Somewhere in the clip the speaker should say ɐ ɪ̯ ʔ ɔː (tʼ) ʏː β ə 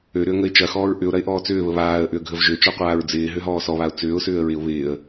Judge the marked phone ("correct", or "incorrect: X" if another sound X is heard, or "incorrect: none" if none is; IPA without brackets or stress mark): incorrect: t͡s